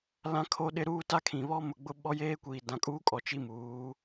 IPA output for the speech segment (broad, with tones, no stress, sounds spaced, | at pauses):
l ã˦ kʰ o˦ ɗ ɪ˦ ɾ uː˦ t a˦ kʰ ĩ˨ β ɔ˦ m ʊ˨ ɡ͡b ʊ˦ ɓ ɔ˦ j eː˦ kʷ iː˨ d ã˨ kʼ uː˦ kʼ ɔ˨ t͡ʃ i˦ m uː˨˦